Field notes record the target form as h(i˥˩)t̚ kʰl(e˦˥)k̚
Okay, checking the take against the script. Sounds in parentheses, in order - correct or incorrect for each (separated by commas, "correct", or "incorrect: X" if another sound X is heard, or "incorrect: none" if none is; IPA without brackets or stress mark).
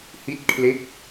correct, correct